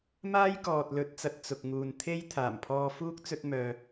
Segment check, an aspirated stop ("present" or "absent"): present